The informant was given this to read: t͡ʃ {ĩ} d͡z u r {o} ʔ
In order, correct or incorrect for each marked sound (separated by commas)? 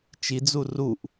incorrect, incorrect